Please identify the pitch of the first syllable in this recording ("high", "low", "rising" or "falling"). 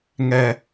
high